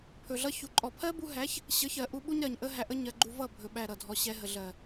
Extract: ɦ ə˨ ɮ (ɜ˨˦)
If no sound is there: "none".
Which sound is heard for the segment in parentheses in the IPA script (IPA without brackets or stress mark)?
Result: ɜ˨